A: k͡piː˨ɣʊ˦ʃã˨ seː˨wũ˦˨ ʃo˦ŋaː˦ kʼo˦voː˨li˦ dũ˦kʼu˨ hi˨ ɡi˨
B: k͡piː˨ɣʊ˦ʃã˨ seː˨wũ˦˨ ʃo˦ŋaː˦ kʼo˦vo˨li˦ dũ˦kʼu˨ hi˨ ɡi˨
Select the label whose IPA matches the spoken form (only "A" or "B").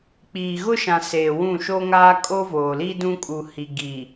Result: A